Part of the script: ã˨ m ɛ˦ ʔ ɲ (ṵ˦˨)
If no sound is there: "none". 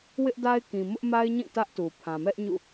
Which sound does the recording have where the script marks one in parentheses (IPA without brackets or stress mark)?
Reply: ṵ˦˨